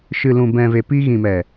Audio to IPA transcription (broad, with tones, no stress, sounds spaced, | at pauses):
ʃ ɨ˨ l ũ˨ b ɛ̃˨ v e˨ p i˧ ɣ ĩ˨ m ɛ˨